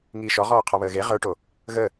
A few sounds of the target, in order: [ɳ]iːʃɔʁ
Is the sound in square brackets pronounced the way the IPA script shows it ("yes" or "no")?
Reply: no